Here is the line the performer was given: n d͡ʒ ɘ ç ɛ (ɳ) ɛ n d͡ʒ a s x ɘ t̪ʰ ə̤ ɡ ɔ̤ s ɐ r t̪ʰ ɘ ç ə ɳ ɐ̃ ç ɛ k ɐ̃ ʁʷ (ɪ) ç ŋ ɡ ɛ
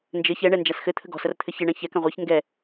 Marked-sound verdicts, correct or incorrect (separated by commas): correct, correct